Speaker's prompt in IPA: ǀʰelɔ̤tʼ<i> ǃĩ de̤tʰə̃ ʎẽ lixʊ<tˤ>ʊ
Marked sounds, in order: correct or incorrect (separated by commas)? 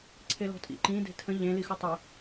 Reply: incorrect, correct